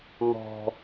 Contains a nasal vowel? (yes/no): no